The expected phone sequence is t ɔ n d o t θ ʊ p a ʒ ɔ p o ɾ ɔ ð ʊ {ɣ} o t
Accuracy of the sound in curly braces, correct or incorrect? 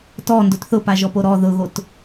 correct